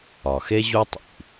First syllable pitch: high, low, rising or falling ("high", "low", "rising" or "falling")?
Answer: low